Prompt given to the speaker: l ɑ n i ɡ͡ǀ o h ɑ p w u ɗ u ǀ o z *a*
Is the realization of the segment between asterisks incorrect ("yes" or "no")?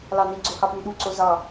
yes